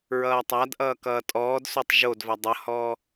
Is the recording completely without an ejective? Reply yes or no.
no